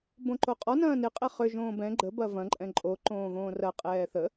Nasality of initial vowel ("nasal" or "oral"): nasal